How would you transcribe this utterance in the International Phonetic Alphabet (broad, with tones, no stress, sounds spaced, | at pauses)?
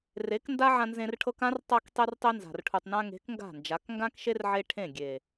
r e˨˦ k n d a˦ ʕ ã˧ n z ẽ˧ r ʈʰ ɤ˧ k ã˦ r tˤ a˧ k tˤ e˦ r tˤ e˦ n z a̤˨ r ʈʰ u˨ tˤ n ã˧ ŋ e̤˨˦ k ŋ ɡ a̤˦˨ n d͡ʒ a˨˦ k ŋ ɡ ã˦ k ʃ e˦ r ʕ e˧ ʈʰ ẽ˦˨ ɡʲ e˨